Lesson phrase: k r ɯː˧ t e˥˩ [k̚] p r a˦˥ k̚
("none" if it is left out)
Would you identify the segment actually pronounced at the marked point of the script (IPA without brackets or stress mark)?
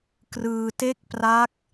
k̚